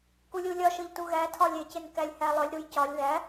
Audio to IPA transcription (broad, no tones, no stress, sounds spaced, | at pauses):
k u lʲ u lʲ ɒ ʃ ɤ ʎ t u ɣ æ tʰ ɒ lʲ e c e n k æ lʲ h æ lˠ œ lʲ ɾ u j c ɒ lʲ ð æ